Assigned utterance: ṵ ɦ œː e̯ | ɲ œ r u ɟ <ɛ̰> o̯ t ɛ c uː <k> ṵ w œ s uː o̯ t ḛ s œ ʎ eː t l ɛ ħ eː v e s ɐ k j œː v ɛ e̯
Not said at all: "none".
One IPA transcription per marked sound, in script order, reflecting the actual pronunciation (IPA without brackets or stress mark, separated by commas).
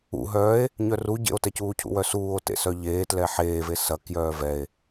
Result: ḛ, cʰ